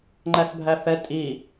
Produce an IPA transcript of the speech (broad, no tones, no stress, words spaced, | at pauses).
ŋ͡ǃæsbʱæfɛ tʼi